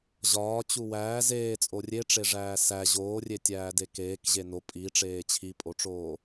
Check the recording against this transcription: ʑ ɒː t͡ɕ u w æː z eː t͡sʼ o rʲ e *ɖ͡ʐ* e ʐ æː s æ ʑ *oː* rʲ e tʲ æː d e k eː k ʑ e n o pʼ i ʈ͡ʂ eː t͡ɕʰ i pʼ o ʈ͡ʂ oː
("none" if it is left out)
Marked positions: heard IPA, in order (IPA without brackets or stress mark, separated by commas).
ʈ͡ʂ, oː